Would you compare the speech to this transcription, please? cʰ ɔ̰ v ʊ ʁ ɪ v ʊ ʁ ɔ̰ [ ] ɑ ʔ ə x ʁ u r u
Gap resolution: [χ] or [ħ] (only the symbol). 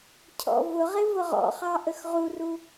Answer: χ